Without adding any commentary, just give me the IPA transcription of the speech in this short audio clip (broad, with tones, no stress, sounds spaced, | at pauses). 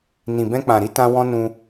n ĩ˨ b ɛ̃˧ k͡p ã˨ ɾ i˨˦ t ã˧ w ɔ̃˦ n ũ˧